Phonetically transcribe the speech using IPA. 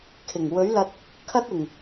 kʰ ɪ˨˩ ŋ w ɵ˨˥ ɥ l ɐ˧ t̚ | kʰ ɐ˥ t̚ ɪ˨˩ ŋ

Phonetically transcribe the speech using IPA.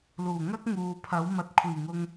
l uː˨˩ ŋ ɐ˥ k̚ ŋ uː˨ pʰ ɐ˨˥ w m ɐ˨ t̚ kʷʰ iː˨˩ ŋ ʊ˧ ŋ

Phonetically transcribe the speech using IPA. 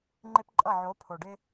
ŋ͡ǃ e˦ p ǃʼ ʌ˦˨ ʕ o˨˦ pʰ o˨ ɖ ɪ˦

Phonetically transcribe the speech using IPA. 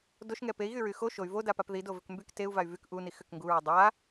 d o ʃ ŋ ɛ p e i̯ ɣ y ɹ y x o ʃ o y̯ v o d a p a p ð i d o v ʏ k m b y k t e u̯ v a y̯ v y k ʔ u n i x ʏ k ŋ ɡ u ɹ o dˤ a

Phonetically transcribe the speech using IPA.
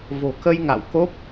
v o̤˨˩ k ə˧ j ŋ a̰˧˨ w k o˦˥ p̚

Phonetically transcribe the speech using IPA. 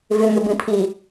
v ʏ ŋ ʏ b ĩ pʰ i

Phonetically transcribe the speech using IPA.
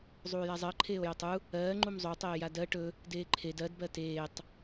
zˤ uː j a zˤ ɜ ǃʰ eː o̯ j o tˤ u | ɜː ŋ͡ǃ u m zˤ o tˤ eː j a d ɜ ʈ ɵ | d eː ǃʰ e d ɜ d b ɜ t eː tˤ

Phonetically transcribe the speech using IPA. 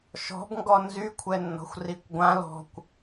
ʃ ɔ̤ b ŋ ɡ ɔ n z y kʷʰ ɛ nː ɔ̤ xʷ r i kʷ ɡʷ ã l ɔ̤ kʷ

